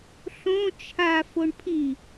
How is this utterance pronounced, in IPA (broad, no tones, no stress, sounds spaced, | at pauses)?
ɬ õ t͡ʃʰ a f o ɳ pʰ i